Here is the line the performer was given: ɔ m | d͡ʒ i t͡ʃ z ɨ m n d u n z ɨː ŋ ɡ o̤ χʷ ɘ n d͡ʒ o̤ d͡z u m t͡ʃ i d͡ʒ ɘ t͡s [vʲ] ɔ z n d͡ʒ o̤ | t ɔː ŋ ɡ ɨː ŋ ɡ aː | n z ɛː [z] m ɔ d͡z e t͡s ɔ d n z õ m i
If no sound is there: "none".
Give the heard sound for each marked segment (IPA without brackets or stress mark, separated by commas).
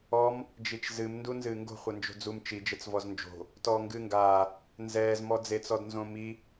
v, z